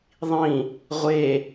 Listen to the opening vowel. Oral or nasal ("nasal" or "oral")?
nasal